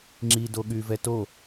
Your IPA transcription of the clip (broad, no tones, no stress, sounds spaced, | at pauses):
ŋ͡ǁ i d o ɠ y v ɛ t o